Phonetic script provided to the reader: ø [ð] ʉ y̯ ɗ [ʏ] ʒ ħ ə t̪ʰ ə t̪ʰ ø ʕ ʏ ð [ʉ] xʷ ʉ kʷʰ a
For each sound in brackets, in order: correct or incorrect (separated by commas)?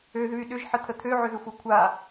correct, correct, incorrect